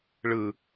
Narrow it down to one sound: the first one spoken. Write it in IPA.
ɭ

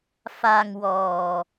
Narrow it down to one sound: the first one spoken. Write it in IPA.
f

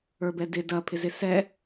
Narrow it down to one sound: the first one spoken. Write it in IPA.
ə˞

